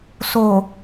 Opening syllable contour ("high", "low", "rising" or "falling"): low